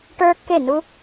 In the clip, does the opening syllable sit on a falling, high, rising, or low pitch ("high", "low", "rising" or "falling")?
high